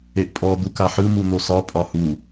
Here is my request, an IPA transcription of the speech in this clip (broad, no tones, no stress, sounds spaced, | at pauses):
e ʔ pʼ ɔ d̪ u k a ħ ɯ m u n̪ o s ɒ pʼ ɒ h u